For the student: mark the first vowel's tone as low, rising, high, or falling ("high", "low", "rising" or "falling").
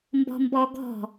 high